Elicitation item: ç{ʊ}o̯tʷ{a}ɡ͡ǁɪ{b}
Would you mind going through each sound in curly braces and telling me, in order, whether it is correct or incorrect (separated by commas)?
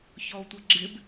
incorrect, incorrect, correct